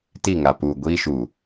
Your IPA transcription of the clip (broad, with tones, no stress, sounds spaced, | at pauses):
t i˦˨ ŋ a˨ p uː˨ ɡʷ iː˦ ʃ uː˨